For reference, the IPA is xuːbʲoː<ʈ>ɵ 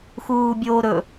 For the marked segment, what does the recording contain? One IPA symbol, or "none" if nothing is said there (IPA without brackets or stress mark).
ɾ